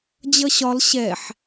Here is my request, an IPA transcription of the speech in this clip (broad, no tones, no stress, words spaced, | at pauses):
d͡ʑʌɕɒl ɕɛħ